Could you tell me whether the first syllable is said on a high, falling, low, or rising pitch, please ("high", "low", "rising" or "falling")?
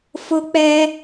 high